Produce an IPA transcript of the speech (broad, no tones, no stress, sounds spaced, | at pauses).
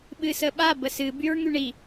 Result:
ɓ ɨ s ə ɓ a b ə s ɨ b y ɹ ŋ y ɳ i